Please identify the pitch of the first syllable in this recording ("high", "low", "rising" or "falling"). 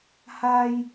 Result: high